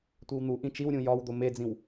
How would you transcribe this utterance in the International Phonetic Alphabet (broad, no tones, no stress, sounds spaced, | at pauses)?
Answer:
tʷ i w n̪ u ʔ ĩ t͡ʃ i w ɾʲ ũ j ɒ w d̪ o m e d͡z ĩ w